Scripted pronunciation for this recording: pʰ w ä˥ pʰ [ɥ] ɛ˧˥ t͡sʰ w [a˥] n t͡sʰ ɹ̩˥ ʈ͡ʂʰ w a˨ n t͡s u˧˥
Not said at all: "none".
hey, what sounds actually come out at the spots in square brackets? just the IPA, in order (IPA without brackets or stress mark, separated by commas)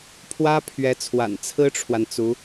ɥ, a̰˨˩